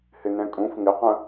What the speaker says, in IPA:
hɪnɛ̃kʼũf ŋɪqə̃

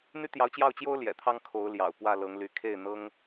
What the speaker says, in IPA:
n̪y˥t̪jɑ˧˥ʊ̯t͡ɕjɑ˥˩ʊ̯t͡ɕjo˥ʊ̯ ljɛ̰˨˩t̪ʰɑ˥ŋkʰo˧˥ʊ̯ljɑ̰˨˩ʊ̯ pwä˥˩lɤ˧˥ŋly˧˥ kʰe˥˩ɪ̯n̪ɤ˥ŋ

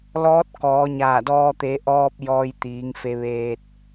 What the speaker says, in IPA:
lɔː˧˥t̚kɔː˩˧ɲaː˧˩dɔː˧ t̪e˩˧ʔɔː˧p̚ jɔː˧jt̪iː˩˧ŋfe˧ ʋeː˧t̚

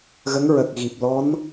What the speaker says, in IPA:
ɣə˧˥ŋɹə˨˩k̚ɣi˨˩p̚ lɔ˧˥n

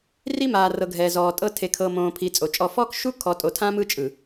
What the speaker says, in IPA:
ri˦maː˨rɤ˨ ɡʱɛ˨zɔː˨tʼɤ˦ tʰe˨kʰɤ˨ mõː˨pʰi˨ t͡sʼo˨t͡ʃʼɔ˦˨ fɔː˦kʃu˦kʰɔ˨ tʼo˨tʰã˦ mɯ˦t͡ʃʼɯ˨

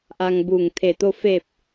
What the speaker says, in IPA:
ʔa˧ŋbuː˧˩ŋ t̪ʰe˧˩t̪o˥˨ fe˧˩p̚

